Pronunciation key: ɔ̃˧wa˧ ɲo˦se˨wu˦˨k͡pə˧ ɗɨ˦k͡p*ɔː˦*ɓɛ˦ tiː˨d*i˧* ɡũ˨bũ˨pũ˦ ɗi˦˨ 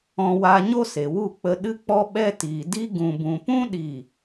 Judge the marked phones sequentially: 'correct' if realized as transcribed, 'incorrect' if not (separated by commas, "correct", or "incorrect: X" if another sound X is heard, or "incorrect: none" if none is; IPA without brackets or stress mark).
incorrect: ɔ˦, incorrect: i˦